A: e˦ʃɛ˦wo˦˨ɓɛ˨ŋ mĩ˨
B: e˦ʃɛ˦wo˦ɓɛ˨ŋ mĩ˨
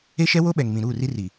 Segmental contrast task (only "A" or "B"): B